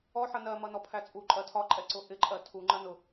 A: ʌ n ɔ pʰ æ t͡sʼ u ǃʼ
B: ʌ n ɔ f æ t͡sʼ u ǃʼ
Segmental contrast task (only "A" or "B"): A